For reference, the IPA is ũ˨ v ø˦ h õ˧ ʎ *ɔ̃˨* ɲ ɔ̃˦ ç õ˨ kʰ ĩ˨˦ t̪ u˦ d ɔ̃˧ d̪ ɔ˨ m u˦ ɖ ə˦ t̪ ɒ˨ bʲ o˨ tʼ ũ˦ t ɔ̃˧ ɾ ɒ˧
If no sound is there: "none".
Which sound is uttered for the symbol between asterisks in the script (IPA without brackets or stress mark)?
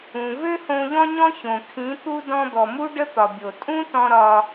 ɔ̃˦